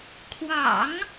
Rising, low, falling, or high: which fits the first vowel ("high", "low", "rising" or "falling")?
low